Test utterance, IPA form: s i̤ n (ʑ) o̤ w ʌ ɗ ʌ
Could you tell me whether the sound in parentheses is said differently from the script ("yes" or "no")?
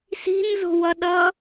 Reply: yes